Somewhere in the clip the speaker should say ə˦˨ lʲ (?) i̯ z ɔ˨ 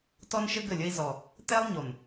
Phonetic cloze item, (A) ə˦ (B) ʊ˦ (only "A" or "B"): A